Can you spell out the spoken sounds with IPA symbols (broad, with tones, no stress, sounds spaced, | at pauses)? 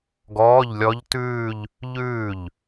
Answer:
ɡ ɔː˧˥˧ ʎ lʲ ɔ˦˥ ʎ t ʉː˥˧ ʎ | ʎ ʉː˥˩ ʎ